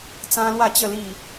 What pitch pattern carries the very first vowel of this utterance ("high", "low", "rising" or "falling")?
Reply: high